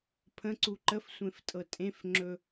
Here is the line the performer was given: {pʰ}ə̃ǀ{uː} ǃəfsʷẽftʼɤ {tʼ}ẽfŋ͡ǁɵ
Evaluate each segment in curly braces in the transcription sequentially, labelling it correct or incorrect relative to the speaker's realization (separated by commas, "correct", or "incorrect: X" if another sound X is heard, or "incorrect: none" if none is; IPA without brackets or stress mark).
correct, incorrect: u, correct